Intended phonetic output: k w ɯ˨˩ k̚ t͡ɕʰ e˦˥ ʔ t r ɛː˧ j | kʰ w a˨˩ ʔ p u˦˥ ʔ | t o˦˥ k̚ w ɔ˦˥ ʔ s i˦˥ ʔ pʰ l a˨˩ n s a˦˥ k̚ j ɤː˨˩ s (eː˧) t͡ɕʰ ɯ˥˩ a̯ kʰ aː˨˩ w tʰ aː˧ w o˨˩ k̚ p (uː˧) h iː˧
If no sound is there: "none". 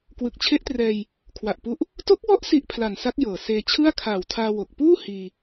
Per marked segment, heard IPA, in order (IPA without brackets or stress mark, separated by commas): eː˧, uː˥˩